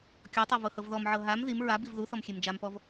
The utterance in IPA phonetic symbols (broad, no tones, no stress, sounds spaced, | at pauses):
kʲ ɔ tˤ ɤ v ɤ h ɤ v ð ɔ m ʕ ɤ ɦ a m ð i m ɹ a b i v ð u θ ɔ m xʲ e m d͡ʒ a m p ɔ v